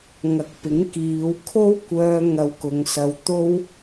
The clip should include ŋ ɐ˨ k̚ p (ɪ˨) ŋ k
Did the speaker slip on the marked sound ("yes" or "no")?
yes